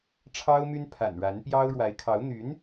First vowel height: low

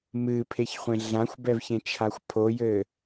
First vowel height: high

